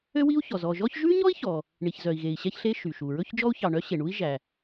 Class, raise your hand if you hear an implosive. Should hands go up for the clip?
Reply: no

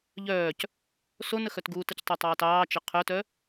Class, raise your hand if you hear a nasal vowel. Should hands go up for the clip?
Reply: no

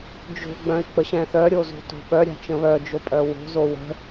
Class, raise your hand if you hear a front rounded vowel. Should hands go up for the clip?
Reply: yes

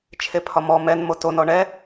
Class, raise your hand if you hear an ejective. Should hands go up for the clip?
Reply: no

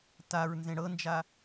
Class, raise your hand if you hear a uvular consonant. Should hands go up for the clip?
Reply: no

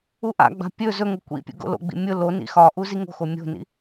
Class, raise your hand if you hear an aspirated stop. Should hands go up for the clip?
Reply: no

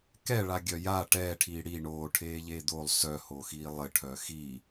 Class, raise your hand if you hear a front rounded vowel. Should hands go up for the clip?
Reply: yes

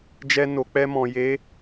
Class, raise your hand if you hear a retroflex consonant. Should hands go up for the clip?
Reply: no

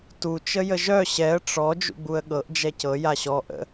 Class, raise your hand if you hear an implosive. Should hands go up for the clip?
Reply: yes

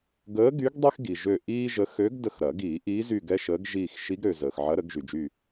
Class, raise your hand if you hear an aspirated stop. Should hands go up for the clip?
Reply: no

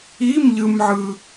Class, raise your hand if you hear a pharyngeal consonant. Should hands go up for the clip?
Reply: yes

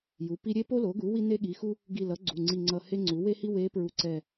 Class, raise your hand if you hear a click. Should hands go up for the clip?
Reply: yes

